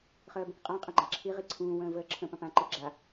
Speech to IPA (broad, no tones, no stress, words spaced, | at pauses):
χəːbə̃kqʼã qʼɐ̃ɡ͡ǃaǁʰi ʁiǀʰũːwə̃ː vəːǁʰə̃ pɐ̃pã ǃiɡ͡ǁa